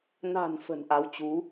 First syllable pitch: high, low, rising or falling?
low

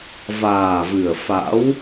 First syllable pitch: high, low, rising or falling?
low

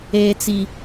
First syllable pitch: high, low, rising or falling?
low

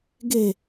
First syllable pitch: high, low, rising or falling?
falling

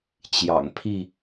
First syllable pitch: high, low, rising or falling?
low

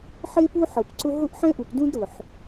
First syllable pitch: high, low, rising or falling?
high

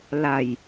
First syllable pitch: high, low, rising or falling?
low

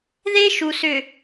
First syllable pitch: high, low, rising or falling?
high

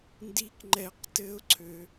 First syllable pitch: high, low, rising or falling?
high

